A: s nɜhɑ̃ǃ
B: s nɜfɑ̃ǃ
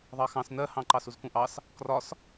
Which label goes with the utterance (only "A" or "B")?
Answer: A